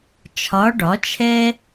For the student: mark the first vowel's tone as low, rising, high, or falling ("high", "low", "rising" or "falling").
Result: rising